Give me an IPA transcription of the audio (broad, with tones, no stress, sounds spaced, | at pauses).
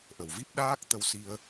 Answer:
ʔ ə˨˩ w v i˦˥ p̚ ɗ aː˦˥ k̚ t̪ ə˧ w s i˧ ə̯